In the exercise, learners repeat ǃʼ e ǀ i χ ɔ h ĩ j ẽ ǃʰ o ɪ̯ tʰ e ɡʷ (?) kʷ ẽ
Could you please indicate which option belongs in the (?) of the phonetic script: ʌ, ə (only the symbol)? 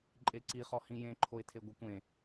ʌ